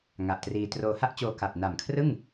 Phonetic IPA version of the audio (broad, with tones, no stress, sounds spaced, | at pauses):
ŋ a˨˩ ʔ t r iː˧ t r oː˧ h a˥˩ ʔ t͡ɕ oː˧ k a˨˩ p̚ n a˨˩ m kʰ r ɯ˥˩ ŋ